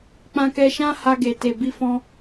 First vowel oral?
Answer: no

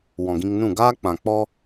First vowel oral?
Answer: no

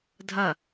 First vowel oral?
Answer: yes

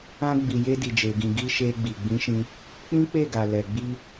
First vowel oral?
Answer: no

